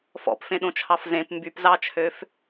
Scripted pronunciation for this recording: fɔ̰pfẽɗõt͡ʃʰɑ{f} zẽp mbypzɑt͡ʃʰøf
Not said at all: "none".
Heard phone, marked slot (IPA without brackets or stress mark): f